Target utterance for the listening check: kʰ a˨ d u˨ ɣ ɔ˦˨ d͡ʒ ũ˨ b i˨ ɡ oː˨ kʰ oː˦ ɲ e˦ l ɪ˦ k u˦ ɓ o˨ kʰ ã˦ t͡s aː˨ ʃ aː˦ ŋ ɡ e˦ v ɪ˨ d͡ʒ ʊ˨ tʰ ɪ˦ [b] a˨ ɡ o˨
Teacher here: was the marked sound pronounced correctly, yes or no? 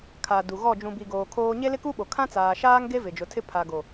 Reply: no